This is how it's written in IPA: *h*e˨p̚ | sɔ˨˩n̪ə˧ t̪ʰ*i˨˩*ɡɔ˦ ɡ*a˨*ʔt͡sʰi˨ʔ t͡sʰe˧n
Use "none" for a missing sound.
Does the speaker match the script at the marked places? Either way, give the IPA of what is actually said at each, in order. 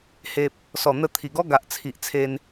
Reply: h, i˨˩, a˨

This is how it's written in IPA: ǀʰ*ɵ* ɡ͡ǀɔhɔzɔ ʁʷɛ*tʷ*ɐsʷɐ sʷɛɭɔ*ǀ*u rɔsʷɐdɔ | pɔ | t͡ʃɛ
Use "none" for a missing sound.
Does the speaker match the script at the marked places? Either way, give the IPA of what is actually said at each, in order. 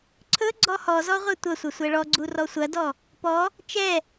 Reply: ɵ, tʷ, ɡ͡ǀ

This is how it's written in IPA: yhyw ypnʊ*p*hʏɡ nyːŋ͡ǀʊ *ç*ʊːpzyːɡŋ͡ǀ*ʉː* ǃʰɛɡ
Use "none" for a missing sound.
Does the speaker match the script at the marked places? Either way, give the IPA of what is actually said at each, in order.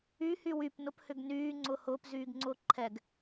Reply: p, h, ʊː

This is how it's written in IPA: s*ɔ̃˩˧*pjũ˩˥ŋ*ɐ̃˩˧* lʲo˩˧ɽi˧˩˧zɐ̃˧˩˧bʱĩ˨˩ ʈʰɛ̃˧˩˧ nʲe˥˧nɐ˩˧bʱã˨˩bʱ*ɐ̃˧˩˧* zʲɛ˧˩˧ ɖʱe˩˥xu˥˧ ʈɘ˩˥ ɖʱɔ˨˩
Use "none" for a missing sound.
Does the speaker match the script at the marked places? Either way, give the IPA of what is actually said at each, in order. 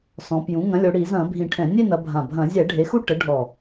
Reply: ɔ̃˩˧, ɐ̃˩˥, ɐ̃˧˩˧

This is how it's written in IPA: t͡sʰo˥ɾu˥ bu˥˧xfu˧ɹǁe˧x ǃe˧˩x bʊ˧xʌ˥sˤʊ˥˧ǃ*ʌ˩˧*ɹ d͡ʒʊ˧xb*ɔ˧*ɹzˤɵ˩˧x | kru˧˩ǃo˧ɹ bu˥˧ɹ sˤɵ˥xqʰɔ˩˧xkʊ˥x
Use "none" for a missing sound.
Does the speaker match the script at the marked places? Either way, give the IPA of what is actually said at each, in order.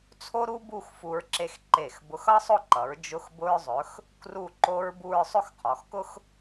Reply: ʌ˩˧, ʊ˧

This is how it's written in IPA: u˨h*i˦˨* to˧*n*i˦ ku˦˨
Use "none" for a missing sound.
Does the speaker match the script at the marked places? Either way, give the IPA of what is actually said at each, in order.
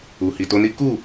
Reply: i˨, n

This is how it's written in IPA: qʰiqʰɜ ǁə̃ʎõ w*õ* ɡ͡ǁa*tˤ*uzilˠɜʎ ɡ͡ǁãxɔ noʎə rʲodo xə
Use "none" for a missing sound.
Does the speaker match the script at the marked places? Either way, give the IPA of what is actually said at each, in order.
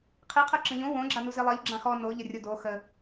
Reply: õ, n

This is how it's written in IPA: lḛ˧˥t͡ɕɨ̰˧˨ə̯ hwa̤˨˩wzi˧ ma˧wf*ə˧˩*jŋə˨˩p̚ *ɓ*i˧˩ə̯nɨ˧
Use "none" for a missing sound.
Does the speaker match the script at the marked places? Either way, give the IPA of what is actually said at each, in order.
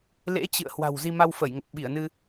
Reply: ə˧˩, ɓ

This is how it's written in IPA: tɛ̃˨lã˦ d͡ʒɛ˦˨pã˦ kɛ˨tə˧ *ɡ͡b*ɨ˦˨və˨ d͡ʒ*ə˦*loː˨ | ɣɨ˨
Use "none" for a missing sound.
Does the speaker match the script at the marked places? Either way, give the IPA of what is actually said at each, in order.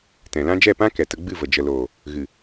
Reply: ɡ͡b, ə˨

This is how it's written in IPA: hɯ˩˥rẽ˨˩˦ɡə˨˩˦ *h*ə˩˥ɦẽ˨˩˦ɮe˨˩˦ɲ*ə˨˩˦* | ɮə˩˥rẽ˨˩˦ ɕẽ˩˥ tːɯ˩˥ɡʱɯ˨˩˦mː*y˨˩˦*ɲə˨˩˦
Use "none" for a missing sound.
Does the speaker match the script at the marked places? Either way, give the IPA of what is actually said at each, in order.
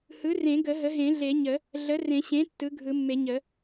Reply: ɦ, ə˨˩˦, e˨˩˦

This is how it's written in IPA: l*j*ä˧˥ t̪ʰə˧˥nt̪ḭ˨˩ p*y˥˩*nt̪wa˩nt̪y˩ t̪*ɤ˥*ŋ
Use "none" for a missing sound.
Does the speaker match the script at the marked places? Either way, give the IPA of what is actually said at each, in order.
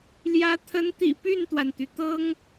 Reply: j, y˥˩, ɤ˥

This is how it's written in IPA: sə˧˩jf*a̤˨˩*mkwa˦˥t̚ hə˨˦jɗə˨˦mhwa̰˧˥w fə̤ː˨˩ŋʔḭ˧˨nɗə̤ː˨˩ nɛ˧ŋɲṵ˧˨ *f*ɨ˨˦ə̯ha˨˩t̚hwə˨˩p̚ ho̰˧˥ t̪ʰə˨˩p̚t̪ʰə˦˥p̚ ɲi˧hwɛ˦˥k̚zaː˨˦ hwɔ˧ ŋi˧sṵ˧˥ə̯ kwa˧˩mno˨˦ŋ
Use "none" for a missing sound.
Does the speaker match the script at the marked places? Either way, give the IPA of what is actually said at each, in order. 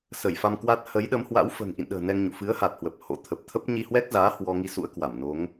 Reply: a˧, f

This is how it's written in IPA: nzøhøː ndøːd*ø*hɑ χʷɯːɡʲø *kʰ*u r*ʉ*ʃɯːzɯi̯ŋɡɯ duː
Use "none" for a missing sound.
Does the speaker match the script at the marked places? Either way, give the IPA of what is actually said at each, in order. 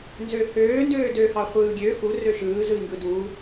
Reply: ø, x, ø

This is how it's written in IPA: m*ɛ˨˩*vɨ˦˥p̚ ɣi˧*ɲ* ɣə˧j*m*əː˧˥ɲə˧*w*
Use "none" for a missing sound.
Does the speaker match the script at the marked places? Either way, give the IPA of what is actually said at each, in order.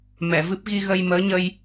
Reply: ɛ˨˩˨, none, m, j

